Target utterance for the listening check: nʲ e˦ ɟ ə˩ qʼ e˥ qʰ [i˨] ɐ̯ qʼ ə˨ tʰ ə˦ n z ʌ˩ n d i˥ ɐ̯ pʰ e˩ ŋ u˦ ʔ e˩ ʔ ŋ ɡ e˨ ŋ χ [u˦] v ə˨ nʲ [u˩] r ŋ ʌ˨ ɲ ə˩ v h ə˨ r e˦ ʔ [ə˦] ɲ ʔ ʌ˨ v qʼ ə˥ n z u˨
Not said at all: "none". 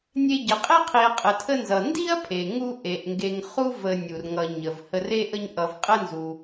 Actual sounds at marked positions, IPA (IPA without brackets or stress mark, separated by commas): i˨, u˦, u˩, ə˦